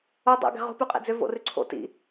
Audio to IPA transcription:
o dˤ o̰ ɡ ɛ̤ ʁ o̤ p ʉ qʼ ɛ̰ d͡z ʏ v o̰ r ʉ ǀʰ o̰ t ḭ

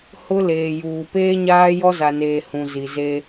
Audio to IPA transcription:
h ʊ˦ l eː˨ j uː˨ p eː˦ ɲ aː˦ j ɔ˦ z a˨ n eː˨ h ũ˨ z i˨ z e˦

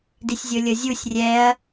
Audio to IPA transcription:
d i sʲ zʲ o lʲ ɤ zʲ u sʲ rʲ ɛ ɐ̯

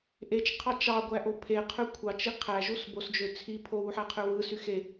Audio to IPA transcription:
ʔ e t͡ʃ qʰ ɑ t͡ʃ ɑ ɡʷ æ ʔ o pʰ e qʰ ø kʷʰ ɑ t͡ʃ i qʰ æ ʒ u s b o s d͡ʒ ø t͡sʰ i pʰ o w u ħ æ qʰ ø w ɯ s y x e

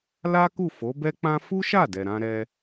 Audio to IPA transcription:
l a˦ k u˦˨ f o˨˦ b ɛ˦ k͡p ã˦ f u˦ ʃ a˦˨ d ɛ˨ ɾ ã˧ ɾ ɛ˧

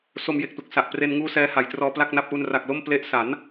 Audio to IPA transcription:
s o˧ m j e˨˩ k̚ t u˨˩ k̚ s a˨˩ ʔ p r e˧ n ŋ uː˦˥ s ɛː˦˥ h a˩˦ j t r ɔː˧ p l a˥˩ k̚ n a˥˩ p̚ ʔ u˧ n r a˨˩ k̚ l o˥˩ m p l e˦˥ ʔ s a˩˦ n

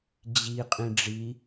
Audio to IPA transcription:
d͡ʑ i qʼ ĩ ɖ͡ʐ i

